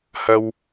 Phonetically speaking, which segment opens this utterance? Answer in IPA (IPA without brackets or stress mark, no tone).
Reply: h